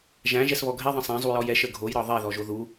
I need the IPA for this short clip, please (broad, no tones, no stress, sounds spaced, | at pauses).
ʒ æ̃ ʒ ɛ s β ɔ ɡʱ ɛ ðˤ ə̃ sˤ æ̃ zˤ u j ɔ j ɛ ʃ ə ɡʱ o j ɾ ɒ ðˤ ɛ ð ɔ ʒ o ð u